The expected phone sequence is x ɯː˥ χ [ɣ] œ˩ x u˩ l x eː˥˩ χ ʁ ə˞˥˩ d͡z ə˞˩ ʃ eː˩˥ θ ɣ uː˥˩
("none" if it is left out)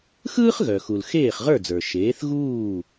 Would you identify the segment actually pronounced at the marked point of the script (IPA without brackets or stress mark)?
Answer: ɣ